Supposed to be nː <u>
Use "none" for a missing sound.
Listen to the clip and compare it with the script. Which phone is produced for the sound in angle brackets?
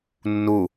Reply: u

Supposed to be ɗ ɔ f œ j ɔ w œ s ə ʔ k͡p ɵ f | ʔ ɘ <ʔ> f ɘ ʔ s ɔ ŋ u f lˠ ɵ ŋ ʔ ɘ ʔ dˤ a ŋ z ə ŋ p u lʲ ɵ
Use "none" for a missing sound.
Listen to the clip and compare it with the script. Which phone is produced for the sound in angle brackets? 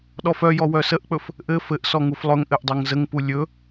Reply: none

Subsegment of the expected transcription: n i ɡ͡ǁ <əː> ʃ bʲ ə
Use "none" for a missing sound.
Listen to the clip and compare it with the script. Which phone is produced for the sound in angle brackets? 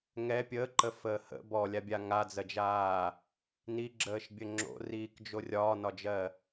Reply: əː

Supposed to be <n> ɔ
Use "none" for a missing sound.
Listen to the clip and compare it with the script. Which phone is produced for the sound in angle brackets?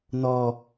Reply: n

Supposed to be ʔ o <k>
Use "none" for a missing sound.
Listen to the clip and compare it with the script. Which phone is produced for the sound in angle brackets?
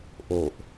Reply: ʔ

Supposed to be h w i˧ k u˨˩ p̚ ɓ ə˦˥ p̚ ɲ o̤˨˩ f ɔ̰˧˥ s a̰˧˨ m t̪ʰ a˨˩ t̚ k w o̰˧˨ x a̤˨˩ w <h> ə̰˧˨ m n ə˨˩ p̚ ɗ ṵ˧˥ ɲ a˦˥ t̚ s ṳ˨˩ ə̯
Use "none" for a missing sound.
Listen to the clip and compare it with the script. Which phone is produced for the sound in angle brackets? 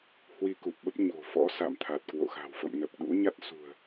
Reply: f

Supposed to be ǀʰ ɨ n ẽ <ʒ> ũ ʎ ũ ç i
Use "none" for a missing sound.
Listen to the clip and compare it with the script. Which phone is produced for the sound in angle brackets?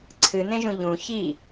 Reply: ʒ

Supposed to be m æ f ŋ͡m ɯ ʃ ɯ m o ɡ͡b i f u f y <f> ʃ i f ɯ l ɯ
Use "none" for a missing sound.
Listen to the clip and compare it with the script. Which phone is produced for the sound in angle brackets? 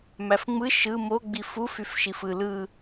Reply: f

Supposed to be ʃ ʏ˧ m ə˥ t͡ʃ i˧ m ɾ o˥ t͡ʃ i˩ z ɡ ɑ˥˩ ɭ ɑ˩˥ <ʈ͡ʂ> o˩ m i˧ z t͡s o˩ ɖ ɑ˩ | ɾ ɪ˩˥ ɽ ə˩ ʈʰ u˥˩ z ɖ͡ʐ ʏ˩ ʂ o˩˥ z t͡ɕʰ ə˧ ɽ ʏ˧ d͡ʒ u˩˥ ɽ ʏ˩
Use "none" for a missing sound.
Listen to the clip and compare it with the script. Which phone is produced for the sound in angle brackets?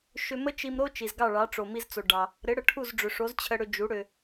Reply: ʈ͡ʂ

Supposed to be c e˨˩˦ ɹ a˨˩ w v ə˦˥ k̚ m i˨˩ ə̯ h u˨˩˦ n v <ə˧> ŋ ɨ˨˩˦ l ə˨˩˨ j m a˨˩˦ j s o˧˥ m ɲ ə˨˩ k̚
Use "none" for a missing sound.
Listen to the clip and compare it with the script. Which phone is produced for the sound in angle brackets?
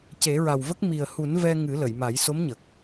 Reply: ɛ˧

